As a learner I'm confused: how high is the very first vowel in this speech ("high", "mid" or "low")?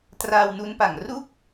low